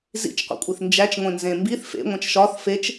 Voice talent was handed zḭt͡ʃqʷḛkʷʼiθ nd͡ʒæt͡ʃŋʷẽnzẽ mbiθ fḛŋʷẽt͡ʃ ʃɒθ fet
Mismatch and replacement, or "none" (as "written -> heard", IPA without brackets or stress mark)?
t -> t͡ʃ